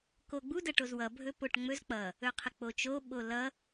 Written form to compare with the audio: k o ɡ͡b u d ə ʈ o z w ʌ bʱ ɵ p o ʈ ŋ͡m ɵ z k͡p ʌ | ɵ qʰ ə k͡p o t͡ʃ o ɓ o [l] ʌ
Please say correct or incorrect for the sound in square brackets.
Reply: correct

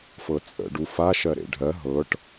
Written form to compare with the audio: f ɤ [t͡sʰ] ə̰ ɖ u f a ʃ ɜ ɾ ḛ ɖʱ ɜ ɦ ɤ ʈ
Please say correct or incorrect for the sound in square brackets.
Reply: incorrect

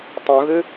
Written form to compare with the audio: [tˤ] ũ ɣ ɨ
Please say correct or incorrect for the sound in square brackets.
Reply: correct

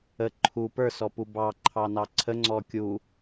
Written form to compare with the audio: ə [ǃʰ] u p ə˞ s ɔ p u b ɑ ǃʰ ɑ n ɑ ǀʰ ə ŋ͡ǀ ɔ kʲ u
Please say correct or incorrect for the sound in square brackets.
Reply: correct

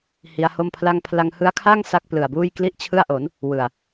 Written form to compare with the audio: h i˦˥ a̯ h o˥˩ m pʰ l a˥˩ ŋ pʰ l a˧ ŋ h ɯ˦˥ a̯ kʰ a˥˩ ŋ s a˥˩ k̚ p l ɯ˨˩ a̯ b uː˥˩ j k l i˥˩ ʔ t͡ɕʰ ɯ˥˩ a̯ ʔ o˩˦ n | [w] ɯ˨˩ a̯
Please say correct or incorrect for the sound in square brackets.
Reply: correct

